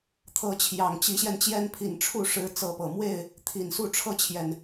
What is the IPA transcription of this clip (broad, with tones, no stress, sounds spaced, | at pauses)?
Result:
t̪ʰ ɤ˨˦ t͡ɕʰ j ɑ˨˩ ŋ t͡ɕ i˨˦ ɕ j ɛ˧ n t͡ɕ j ɛ˦ n pʰ i˨˩ n ʈ͡ʂʰ u˥˨ ʂ ɻ̩˨˦ t͡s ɤ˨˦ p ɤ˨˩ m w e˥˨ ɪ̯ | t̪ʰ i˨˩ n s u˥˨ ʈ͡ʂʰ ɤ˥˨ t͡ɕʰ j ɛ˨˩ n